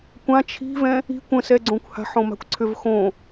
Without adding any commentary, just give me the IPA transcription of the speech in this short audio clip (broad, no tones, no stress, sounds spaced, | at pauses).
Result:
kʷ ã t͡ʃʰ i̤ v ɛ̃ | i̤ kʷ ə̃ s ɛ ɡ͡ǀ õ kʷ h a̤ ħ õ m a̤ kʷ ǀʰ ʏ v x õ